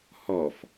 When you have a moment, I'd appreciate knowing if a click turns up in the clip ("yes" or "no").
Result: no